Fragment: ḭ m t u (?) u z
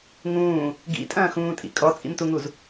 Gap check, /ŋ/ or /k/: ŋ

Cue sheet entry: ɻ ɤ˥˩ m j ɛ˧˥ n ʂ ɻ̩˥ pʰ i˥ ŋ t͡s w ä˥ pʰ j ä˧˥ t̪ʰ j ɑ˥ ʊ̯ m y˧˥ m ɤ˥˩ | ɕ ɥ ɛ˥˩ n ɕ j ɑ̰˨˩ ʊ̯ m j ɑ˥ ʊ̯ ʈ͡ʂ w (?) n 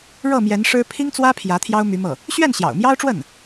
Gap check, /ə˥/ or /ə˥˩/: ə˥˩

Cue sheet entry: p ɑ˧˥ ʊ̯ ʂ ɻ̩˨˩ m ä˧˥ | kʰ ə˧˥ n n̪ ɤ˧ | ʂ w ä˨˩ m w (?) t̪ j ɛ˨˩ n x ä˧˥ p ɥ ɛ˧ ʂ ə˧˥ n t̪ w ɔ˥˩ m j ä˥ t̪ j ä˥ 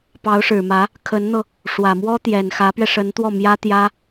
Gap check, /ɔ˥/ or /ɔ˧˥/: ɔ˥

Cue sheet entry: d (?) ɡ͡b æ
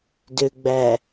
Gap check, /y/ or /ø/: ø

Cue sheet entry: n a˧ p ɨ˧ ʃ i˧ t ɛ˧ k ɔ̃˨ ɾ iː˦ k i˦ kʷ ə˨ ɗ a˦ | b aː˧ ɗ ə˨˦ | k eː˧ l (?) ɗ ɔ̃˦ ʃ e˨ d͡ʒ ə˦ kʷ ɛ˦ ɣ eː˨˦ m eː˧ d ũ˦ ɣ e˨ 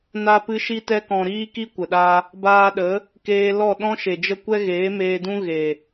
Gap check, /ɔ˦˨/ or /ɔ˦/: ɔ˦˨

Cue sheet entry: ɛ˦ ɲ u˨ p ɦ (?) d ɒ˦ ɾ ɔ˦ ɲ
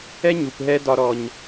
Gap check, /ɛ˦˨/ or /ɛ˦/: ɛ˦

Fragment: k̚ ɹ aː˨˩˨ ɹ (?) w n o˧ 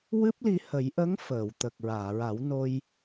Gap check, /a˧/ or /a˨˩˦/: a˨˩˦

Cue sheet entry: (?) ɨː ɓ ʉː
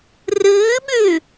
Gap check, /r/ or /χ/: r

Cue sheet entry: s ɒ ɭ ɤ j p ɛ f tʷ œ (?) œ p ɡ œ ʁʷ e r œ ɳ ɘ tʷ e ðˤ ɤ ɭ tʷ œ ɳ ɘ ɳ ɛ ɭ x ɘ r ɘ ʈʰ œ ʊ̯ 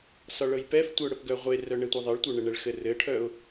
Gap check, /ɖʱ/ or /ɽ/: ɽ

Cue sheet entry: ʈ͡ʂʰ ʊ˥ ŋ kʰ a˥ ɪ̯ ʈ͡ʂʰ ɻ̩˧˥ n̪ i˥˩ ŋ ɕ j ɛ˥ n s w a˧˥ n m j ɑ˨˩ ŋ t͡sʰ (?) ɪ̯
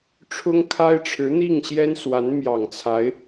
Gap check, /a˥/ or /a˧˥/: a˧˥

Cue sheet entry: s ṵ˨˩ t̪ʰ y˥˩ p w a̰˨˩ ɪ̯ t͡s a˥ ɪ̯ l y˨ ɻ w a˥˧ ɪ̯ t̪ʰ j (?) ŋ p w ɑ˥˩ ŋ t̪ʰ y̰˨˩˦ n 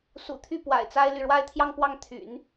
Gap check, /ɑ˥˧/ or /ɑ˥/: ɑ˥˧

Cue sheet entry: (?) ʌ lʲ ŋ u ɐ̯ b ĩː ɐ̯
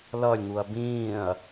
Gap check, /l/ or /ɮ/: l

